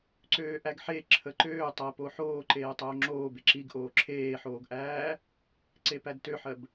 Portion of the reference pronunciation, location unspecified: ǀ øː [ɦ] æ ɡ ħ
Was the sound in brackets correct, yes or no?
no